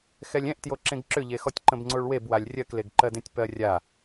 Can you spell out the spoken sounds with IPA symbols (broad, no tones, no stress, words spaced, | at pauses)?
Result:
xɛlʲɛ̃ʔtjo ǁẽɡǁʏʎexɔtʲ ǃə̃bŋ͡ǀoɭwebwalʲ rʲɜkleɡǃɜdẽtʲ pɜrʲa